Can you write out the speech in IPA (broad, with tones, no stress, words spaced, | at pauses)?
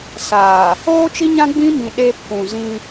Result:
saː˨ | oː˦t͡ʃi˦ɲã˦ ɡ͡bĩ˦mĩ˨ ɗe˦pʰũ˨ zĩ˦